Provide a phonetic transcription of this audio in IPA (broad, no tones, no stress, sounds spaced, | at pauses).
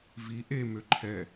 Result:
v i ʔ e m ø ǃʰ ɛ